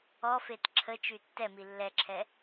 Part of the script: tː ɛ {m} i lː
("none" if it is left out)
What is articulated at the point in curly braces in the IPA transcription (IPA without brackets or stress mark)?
m